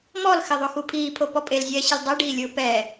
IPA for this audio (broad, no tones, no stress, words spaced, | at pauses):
mɔlxɪ ðˤoxupʰiːpʰo pɔpʼelzʲɛː ɕɪlʲdˤeɖiːlʲʊː pɛ